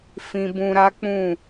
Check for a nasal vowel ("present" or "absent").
present